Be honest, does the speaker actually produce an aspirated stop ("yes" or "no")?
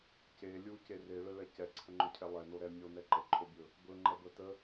yes